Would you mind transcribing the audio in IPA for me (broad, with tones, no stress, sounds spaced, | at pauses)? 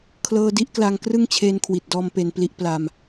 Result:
kʰ l ɤː˧ d i˥˩ ʔ k l a˧ ŋ k r ɯ˥˩ ŋ t͡ɕʰ eː˧ n kʰ w i˨˩ t̚ d ɔː˧ m p e˧ n p l i˦˥ ʔ p l a˧ m